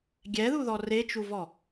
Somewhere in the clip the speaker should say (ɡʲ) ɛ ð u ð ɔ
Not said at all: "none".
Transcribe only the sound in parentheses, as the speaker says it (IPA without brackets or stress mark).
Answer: ɡʲ